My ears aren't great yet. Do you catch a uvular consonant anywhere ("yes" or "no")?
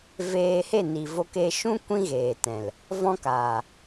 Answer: no